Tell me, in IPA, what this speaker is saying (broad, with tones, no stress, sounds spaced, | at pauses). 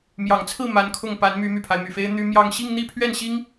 m j ɑ˨˩ ŋ t͡sʰ ɹ̩˥˩ m a˧˥ n kʰ ʊ˥˩ ŋ p a˧˥ n m y˧˥ m y˨˩ pʰ a˦ ɪ̯ m y˨˩ f e˥ ɪ̯ n̪ y˥ m j ɑ˥˧ ŋ ɕ i˥˧ ŋ n̪ i˥˧ pʰ ɥ ɛ˥˩ n ɕ i˥ ŋ